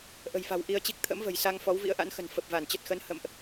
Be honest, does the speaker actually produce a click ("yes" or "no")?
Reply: no